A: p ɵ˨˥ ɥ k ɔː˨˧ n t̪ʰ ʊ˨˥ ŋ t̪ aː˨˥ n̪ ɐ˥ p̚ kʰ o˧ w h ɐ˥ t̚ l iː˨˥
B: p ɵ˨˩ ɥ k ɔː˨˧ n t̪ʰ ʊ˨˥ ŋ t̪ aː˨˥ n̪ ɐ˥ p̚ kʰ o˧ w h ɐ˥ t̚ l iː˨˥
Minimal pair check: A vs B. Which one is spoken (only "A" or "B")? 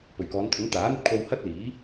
B